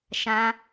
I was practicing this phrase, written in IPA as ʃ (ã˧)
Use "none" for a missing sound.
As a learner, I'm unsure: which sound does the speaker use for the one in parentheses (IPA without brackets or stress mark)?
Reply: ã˧